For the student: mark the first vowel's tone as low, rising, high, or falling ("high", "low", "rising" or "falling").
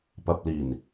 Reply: low